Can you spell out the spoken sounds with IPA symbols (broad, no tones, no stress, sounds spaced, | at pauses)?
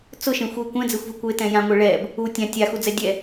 t͡s ʊ ʃ ẽ xʷ i kʷ ɛ̃ d͡z e xʷ v i kʷ e t ɛ̃ j ã ŋʷ e ɭ ɛ b | u tʲ ã tʲ a x u d͡z ɛ dʲ ɛ